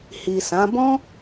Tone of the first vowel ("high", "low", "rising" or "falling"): low